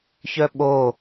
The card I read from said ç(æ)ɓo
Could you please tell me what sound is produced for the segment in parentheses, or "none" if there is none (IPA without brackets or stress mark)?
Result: œ